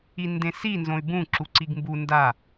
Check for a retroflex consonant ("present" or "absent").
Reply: absent